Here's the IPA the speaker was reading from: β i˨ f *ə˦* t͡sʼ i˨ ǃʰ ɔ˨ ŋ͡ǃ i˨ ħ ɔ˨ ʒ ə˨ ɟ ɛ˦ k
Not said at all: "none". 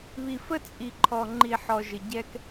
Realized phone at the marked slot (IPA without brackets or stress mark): ə˦